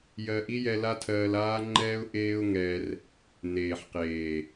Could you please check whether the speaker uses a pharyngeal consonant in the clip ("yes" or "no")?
yes